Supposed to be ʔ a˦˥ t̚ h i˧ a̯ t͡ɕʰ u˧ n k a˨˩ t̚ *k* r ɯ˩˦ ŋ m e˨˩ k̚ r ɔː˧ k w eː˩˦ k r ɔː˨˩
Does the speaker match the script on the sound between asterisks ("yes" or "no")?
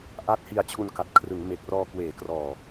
no